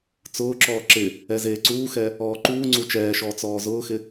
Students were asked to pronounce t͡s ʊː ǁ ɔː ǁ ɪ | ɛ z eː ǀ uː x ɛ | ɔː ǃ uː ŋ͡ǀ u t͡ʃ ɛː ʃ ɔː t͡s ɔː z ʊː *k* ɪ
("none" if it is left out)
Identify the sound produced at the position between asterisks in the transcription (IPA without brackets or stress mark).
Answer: x